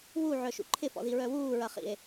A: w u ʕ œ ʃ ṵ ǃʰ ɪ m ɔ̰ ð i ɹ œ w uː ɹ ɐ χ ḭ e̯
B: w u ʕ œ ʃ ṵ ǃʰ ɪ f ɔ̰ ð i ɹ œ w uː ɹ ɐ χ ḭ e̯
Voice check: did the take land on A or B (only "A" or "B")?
B